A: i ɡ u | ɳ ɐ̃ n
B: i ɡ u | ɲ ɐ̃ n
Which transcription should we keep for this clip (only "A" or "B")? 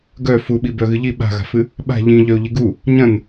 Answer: B